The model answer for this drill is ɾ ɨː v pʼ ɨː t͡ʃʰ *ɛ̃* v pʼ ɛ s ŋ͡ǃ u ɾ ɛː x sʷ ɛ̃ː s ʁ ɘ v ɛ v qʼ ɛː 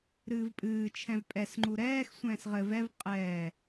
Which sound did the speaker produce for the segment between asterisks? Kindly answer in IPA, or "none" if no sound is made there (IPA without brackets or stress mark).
ɛ̃